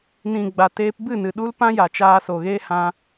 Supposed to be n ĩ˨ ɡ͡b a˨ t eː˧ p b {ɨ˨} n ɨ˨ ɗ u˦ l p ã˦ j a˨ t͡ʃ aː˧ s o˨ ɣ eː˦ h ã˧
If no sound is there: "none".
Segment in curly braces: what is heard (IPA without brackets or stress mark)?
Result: ɨ˦˨